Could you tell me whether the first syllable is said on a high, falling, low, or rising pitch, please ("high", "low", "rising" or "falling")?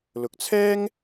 rising